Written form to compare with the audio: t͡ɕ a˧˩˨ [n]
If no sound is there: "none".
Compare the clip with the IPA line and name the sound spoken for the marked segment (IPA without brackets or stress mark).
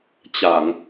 ŋ